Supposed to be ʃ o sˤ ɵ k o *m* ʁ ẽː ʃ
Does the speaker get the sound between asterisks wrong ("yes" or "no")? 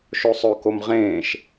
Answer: no